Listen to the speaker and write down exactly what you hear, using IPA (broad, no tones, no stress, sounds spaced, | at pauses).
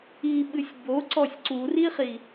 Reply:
i ɓ ɨ sʲ b o ǀ ɔ sʲ ǀ u r i χ i